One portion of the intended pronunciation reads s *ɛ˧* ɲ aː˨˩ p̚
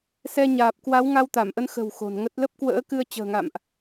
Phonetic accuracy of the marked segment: correct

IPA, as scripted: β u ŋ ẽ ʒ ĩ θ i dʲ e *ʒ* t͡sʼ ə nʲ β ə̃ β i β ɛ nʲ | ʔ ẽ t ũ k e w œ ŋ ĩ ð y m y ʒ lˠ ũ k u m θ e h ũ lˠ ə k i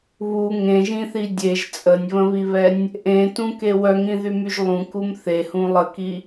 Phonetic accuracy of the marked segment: correct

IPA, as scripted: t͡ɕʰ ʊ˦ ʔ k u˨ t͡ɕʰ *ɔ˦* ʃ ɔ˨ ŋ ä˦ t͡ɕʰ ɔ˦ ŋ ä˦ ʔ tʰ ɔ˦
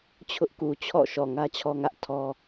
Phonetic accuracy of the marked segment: incorrect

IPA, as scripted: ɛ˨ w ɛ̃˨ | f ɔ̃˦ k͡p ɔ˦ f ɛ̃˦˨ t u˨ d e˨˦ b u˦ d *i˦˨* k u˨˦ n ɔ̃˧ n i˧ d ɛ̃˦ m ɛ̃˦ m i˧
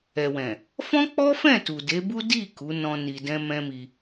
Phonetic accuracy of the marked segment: correct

